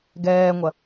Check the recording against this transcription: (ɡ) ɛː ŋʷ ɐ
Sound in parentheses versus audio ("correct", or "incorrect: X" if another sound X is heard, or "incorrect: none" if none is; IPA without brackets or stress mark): correct